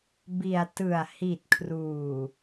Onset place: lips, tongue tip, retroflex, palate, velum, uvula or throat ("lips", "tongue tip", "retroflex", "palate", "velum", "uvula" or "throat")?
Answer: lips